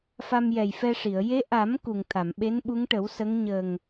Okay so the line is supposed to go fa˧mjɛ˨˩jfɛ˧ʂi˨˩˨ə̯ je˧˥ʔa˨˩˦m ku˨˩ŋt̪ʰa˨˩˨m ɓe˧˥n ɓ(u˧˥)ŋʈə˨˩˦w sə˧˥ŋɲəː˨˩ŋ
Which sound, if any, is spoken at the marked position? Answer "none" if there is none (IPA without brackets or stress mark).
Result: u˧˥